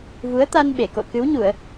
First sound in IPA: v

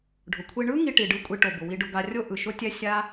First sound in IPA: ɖʱ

